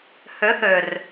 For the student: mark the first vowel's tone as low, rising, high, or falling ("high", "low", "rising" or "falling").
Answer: rising